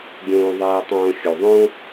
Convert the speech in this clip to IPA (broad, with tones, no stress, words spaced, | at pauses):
ɡʲõː˧ðˤɛː˧tˤõː˧ xʲu˩ðˤõː˥